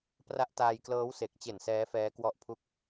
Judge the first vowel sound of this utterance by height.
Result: low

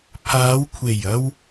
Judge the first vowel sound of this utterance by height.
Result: low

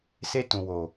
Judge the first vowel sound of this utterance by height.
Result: mid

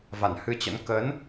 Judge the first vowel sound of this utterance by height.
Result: low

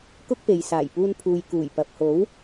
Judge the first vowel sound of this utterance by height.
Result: high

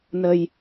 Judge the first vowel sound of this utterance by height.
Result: mid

